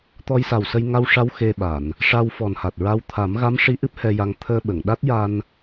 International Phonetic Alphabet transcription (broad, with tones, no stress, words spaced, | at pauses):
t̪ɔ˧jsa˨˩wsə˧j ŋa˧wʂa˧w xe˧ɓa˨˩˨n | ʂa˧wfɔ˨˩nha˨˩t̚ɹa˧w t̪ʰa˨˩˦mɣa˧˥mʂi˧˥ ʔɨ˦˥p̚hɛ˧ja˧ŋ t̪ʰəː˧ɓə˨˩˨ŋ ɗa˦˥t̚ja˧n